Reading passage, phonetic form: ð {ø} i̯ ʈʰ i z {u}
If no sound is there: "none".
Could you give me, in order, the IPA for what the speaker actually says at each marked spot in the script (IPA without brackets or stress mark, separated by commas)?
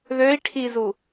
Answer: ø, u